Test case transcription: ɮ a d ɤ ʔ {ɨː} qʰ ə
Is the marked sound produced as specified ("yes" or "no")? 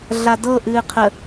yes